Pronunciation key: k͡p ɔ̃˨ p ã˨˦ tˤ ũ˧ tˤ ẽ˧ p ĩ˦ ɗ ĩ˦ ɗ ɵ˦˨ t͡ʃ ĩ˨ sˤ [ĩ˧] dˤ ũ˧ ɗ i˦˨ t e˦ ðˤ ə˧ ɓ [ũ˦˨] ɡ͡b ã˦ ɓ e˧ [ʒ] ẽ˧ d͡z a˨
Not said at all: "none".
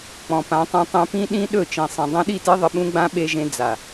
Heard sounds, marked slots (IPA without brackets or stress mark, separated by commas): ĩ˨, ũ˦, ʒ